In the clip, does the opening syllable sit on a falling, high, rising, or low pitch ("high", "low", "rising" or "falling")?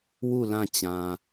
falling